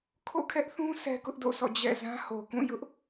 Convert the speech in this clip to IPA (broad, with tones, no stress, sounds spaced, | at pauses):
kʰ o̰˦˨ kʰ ɛ˦ ʔ θ ũ˦ s ɛ˦ k ʊ˦ ʔ d o̰˦˨ s ɔ̰˦˨ d͡ʑ ɛ̰˦˨ z ã˦ h o˨ k ũ˦˨ j ʊ˦ ʔ